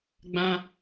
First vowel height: low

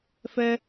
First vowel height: mid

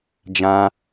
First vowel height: low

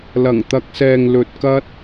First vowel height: low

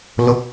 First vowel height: mid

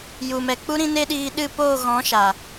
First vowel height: high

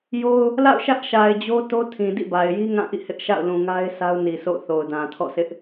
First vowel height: mid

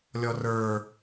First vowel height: mid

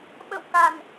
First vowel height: mid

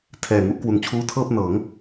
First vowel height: mid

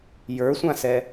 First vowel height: mid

